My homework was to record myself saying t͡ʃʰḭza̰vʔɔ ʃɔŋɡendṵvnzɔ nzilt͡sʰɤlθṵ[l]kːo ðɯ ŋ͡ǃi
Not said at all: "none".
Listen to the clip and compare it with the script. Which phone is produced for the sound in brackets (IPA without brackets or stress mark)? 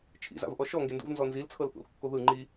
l